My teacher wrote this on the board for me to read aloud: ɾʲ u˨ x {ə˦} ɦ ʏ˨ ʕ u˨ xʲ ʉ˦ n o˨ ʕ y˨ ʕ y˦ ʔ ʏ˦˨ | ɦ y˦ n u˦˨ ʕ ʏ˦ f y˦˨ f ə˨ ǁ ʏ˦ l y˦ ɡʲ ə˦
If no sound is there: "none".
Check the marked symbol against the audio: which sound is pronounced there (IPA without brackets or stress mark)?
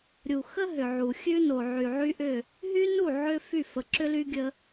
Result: ə˦